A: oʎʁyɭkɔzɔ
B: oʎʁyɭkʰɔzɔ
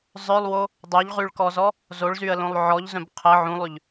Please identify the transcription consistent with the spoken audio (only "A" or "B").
A